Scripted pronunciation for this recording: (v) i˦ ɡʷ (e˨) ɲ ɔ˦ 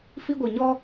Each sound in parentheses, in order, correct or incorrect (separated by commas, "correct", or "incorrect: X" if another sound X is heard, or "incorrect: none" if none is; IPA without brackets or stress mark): incorrect: f, incorrect: i˨